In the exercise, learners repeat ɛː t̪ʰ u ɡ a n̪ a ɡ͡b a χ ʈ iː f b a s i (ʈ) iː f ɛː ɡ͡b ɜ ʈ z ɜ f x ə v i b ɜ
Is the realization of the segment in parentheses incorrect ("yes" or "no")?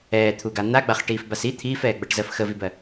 yes